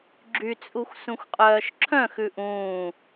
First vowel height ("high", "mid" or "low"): high